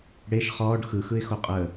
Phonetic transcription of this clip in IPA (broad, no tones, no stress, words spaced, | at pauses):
ɽeʃ χɔːɖ xɯxɯɪ̯xo qʼəː